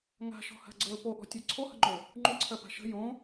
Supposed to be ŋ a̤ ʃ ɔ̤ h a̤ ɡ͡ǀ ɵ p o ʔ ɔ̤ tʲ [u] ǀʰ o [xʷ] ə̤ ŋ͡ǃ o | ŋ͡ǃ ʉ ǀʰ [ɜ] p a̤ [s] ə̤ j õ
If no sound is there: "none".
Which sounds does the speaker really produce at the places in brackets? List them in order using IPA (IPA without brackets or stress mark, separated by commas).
ʉ, h, ɜ, ʃ